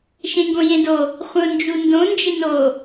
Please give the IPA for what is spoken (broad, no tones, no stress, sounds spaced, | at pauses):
ʃ ẽ ŋ ɡ õ j ẽ d o | χʷ ə̃ ʊ̯ n d͡ʒ u n d õ n d͡ʒ ɪ n o